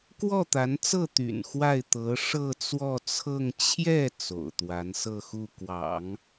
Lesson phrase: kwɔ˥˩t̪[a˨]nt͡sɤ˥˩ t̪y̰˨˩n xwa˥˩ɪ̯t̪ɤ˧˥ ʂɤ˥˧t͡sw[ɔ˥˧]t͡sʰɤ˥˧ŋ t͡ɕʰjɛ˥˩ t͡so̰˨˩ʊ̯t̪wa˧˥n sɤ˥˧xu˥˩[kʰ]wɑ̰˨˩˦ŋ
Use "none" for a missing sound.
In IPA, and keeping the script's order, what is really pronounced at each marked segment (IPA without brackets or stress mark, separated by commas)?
a˧˥, ɔ˥˧, k